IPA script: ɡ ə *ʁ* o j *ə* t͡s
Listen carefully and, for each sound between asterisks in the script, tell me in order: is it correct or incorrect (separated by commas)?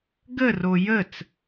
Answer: incorrect, correct